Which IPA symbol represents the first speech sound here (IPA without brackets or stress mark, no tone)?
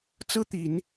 t͡s